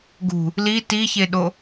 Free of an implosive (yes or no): no